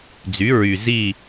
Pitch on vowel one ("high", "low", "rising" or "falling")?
rising